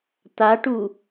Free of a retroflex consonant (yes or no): no